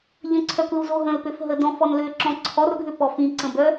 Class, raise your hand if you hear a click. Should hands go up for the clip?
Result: yes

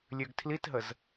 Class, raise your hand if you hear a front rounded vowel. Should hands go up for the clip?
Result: yes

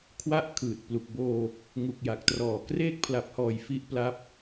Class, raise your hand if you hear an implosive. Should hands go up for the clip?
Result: no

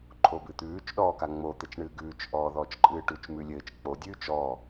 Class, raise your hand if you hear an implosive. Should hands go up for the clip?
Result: yes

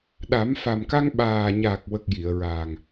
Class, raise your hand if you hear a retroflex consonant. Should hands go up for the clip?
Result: no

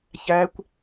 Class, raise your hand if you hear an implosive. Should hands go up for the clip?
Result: no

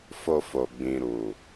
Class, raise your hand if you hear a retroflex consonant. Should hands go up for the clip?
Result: no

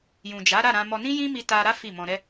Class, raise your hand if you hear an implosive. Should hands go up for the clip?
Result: no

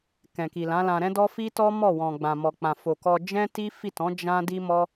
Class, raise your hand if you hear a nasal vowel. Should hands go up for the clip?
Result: yes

